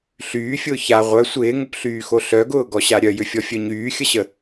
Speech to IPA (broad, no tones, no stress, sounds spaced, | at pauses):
ɬ yː fʲ ʊː ç a ʁʷ œ sʷ ɪː ŋ ʊ p ɬ yː x o ɬ œ ɡ ʊː ɡ ɔ ɕ a ɾʲ œ j ʏ fʲ ɔ fʲ œ ɲ yː xʲ ə ɕ ə